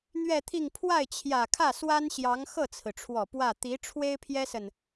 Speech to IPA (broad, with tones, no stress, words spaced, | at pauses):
n̪ɥɛ˥˧t̪ʰi˥˧ŋ pʰwa˥˩ɪ̯t͡ɕʰjä˨˩kʰä˥˩ swa˥nɕjɑ˧˥ŋ xɤ˥˩t͡sʰɹ̩˩ʈ͡ʂʰwɔ˨˩ pwä˥˩ t̪i˧˥ ʈ͡ʂʰwe˥ɪ̯pʰjɛ˥sə˨n